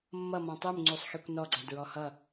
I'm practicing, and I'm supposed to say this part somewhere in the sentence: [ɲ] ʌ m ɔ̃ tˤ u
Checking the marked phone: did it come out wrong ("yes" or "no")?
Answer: yes